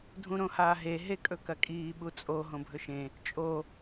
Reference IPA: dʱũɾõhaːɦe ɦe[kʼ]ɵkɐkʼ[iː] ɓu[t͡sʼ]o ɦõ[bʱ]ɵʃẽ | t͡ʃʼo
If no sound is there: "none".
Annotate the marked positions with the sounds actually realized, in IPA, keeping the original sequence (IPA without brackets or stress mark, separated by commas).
kʼ, iː, t͡sʼ, bʱ